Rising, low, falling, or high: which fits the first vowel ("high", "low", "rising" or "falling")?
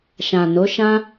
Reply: low